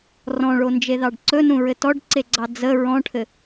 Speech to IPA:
r ɔ̃ ɭ o n d͡ʒ e ð ɑ ɖ ǀ ɵ n ũ ɹ ɘ t ɔ ɖ ǀ e ɡ͡ǀ ɑ d͡z ə ɹ ɔ̃ ʈʰ ɘ

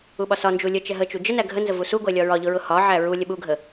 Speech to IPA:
u ɓ ɒ s ɒ n d͡ʒ u lʲ ə t͡ʃ ɛ ɦ ə t͡ʃ u d͡ʒ ə n æ ɡʱ ə n z ə v u s u ɡʷ ɛ lʲ ɒ ɹ ɒ ʎ ʊ ɹ ʊ h ɒ ʕ æ ɹ u lʲ ə ɓ u ɡʱ ə

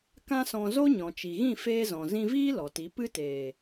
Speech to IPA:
k ã˦ s ɔ̃˧ z o˦ ɲ ɔ̃˨ t͡ʃ i˨ ɣ ĩ˦˨ f eː˦ z ɔ̃˨ z ĩ˧ v iː˦ l ɔ˨ t i˨˦ p ɨ˦ t eː˨

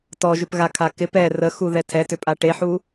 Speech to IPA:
t ɔ ʒ ʏ p ɣ a kʰ a k ɪ p ɛ r ə x u ð ɛ tʰ ɛ t ʏ pʼ a ʈ e ħ u

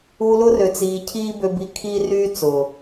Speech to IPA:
uː˧ l ʊ˦ r ø˨ t͡s iː˨ cʰ iː˦ b ø˧ b i˧ kʰ iː˦ r yː˦ t͡s ʊː˨

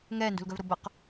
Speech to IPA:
ŋ ɛː n d ṳ l ɡ œ v ɾ o b ə q

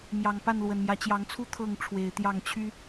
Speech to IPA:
m j ɑ˨˩ ŋ p a˥˨ n l w ə˨˩ n m j ä˦ t͡ɕ j ɑ˨˦ ŋ t͡sʰ u˦ t̪ʰ ɤ˥˨ ŋ ʈ͡ʂʰ w e˨˦ ɪ̯ t̪ j ɑ˥˨ ŋ t͡ɕʰ y˦

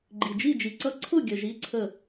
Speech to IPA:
ɡ͡ǃ i˨ d͡ʒ i˥˨ d͡ʒ i˨ ǀ ʌ˦˥ ǀʰ ʊ˥˨ ɡʲ ə˨ ʒ i˦˥ ǀʰ ə˥˨

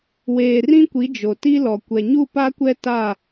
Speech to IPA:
w eː˨ r ĩ˦ kʷ i˨˦ d͡ʒ o˨ t i˦ l ɔ˨ kʷ ɛ˨ ɲ u˦˨ p a˦ kʷ ɛ˦ t a˦˨

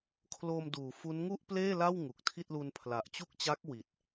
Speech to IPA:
kʰ l o˧ m d uː˩˦ f u˦˥ n ŋ u˥˩ ʔ p l eː˥˩ l a˥˩ w ŋ u˨˩ k̚ tʰ i˥˩ t̚ l u˧ n pʰ l a˨˩ ʔ t͡ɕ u˥˩ k̚ t͡ɕ a˦˥ k̚ w i˨˩ t̚

